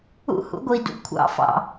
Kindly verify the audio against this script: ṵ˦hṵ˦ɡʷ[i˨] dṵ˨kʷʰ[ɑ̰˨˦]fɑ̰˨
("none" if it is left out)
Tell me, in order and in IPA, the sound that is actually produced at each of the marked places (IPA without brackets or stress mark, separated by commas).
i˨, ɑ̰˨˦